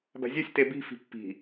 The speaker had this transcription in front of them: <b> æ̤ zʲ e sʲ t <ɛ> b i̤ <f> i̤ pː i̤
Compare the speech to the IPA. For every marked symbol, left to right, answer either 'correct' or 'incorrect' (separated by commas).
correct, incorrect, correct